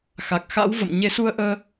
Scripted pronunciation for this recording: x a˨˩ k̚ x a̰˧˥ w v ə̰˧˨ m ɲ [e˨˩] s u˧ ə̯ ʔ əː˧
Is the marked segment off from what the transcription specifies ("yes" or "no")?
yes